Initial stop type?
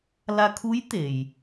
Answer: aspirated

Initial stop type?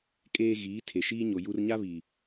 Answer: ejective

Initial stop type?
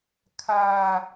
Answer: aspirated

